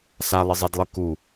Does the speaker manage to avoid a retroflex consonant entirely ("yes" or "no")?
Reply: yes